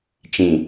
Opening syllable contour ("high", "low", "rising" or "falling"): low